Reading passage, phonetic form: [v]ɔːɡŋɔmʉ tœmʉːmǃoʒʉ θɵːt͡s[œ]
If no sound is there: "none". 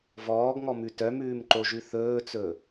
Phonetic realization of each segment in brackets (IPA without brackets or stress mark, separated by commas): v, ɵ